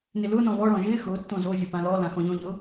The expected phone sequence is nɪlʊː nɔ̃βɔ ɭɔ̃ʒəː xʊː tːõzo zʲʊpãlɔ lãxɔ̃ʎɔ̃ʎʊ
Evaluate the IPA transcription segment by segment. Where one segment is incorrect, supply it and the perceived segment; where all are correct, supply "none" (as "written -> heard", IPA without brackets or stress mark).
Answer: əː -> ɪː